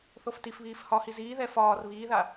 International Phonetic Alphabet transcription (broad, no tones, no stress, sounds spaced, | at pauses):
θ o f t i f β iː f h ɒ h i z iː ð ɛ f ɒː r β iː ð a